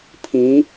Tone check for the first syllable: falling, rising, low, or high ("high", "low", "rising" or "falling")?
rising